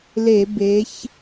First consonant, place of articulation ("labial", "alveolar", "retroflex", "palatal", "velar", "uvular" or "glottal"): alveolar